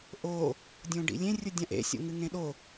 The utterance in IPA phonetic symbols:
ʔ o | dʲ õ ɖ ḭ lʲ ẽ rʲ u dʲ ã ʔ ḛ sʲ o̰ ŋ ɨ ŋ ẽ ɗ o

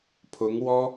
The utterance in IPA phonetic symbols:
pʰ ʊ˧˥ ŋ w ɔ˥

